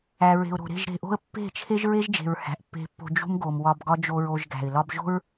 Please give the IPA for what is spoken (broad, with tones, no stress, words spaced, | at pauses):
æ˨ɹe̤˨ʊ̯ɾo̤˨ ɾe̤˦˨ʒɾe̤˨ʔo̤˦ə̯ pːe̤˦˨t͡ʃʰe˦ʒ ɹe˦ʒd͡ʒe̤˨ɹ hæ̤˨ʔpːe̤˧pːo̤˧ d͡ʒṳ˦mɡo˨m wɒ˧bɡɒ˦ d͡ʒo˧ɹo˧ʒ ɡæ̤˨ɪ̯ lɒ˦b ʒo̤˦ɹ